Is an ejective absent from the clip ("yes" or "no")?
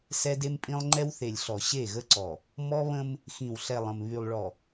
no